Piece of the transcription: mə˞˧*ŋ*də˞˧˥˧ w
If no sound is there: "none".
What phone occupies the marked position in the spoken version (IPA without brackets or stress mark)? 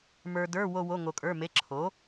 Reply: none